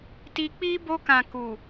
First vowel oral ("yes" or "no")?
yes